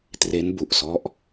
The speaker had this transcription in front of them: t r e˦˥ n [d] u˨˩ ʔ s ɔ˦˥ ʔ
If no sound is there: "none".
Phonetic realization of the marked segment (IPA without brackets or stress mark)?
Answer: b